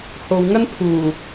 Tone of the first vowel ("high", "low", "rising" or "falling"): low